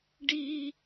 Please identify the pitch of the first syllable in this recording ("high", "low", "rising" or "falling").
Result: high